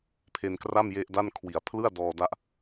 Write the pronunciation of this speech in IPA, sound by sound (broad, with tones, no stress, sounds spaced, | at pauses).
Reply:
pʰ e˧ n k r a˥˩ m j e˦˥ ʔ d a˥˩ n kʰ w i˩˦ a̯ pʰ l ɯ˥˩ a̯ d ɔː˧ d a˦˥ ʔ